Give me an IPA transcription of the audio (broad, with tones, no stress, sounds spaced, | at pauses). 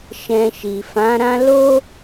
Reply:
ʃ ɛ̃˧ ʃ i˨ f ã˨˦ ɾ ã˦ l o˦